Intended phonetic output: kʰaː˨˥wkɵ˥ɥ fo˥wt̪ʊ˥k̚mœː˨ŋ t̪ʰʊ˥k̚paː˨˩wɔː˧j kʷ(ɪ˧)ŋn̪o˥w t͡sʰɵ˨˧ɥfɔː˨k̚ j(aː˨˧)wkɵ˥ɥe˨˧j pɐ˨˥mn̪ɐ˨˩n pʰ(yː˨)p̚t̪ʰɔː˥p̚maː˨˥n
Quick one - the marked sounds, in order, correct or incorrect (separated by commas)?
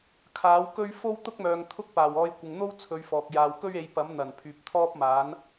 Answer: incorrect, incorrect, correct